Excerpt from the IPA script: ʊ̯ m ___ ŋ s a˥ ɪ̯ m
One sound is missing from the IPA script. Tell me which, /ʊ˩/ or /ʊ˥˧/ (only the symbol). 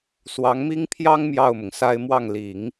ʊ˩